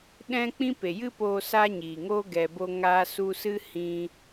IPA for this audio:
ɗ ɛ̃˦ k͡p ĩ˦ p e˨ j ɨ˦ p oː˧ s aː˦ ɲ iː˨ ŋ oː˦ ɡ ɛ˨ b o˧ ŋ aː˧ s u˧ s ɨ˦ h ĩ˧

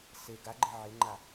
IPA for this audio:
s e ɡ a ɡ͡ǃ ɪ ʕ ɪ ŋ͡ǃ a

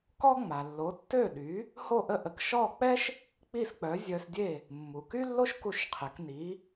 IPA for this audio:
k ɔ˥ ŋ͡m a˩ lː o˩˥ tː ø˥˩ ɗ y˩˥ | h o˥˩ ʔ ə˥˩ ʔ ə˩˥ k ʃ ɔ˥˩ k͡p ɛ˥ ʃ | k͡p i˥˩ s k͡p œ˩˥ zʲ œ˧ s dʲ e˥˩ | mː u˩ k y˥ lː o˥ ʃ k u˥˩ ʃ qʰ e˩˥ k n i˩˥

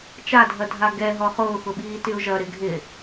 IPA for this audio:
t͡ʃ a dʱ ɐ dʱ a ɡ ɛ ɦ ɔ χ ʊː x ʊ ɓ iː t y ʊ̯ ʒ ɐ ɾ ɪ ɡʱ ɪ

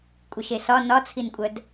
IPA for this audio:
kʷʼ ɨ ʃ e s ɒ n ɒ t͡sʰ i n kʷʼ œ d

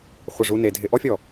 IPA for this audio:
χʷ ɪ˧˩ ʐ u˧ n e˩˧ dʱ ɪ˧ ʔ ɔ˥ fʲ ɔ˧˩

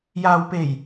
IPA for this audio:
j aː˨ w p e˨˩ j

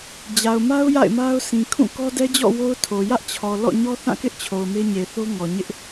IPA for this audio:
d͡ʑ a˨ ʊ̯ m a˦ ʊ̯ j a̰˦˨ ɪ̯ m a˦ ʊ̯ s ĩ˨ kʰ ũ˦˨ k ɔ˦ d ɛ˦ d͡ʑ ɔ̰˦˨ w o˦ ʊ̯ tʰ o˨ j ä˦ ʔ t͡ɕʰ ɔ˨ l ɔ̰˦˨ ɲ ɔ˦ θ ã˦˨ k ɪ˦ ʔ t͡ɕʰ o˨ ʊ̯ m e˦ ɲ e˨ θ o˦ ŋ ɔ˨ ɲ ɪ˦ ʔ

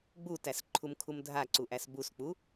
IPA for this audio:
ɡ͡b u t æ s ǃʰ u m kʰ u m dʱ a ǀ u ʔ æ s b u s k͡p u

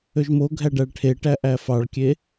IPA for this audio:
ø ʒ m o ɡʱ æ ɖ æ ɭ ʈʰ e ʈ æ ʔ æ f ɑ ɭ kʲ e

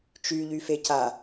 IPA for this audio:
t͡ʃ y ʎ y f e c a

